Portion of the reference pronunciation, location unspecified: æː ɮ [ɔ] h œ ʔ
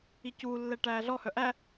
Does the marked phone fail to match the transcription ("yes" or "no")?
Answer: no